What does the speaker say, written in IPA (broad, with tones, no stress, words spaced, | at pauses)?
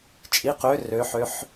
t͡ʃʼi˩˧qø˩˧ rø˩˧ ħø˩˧ħ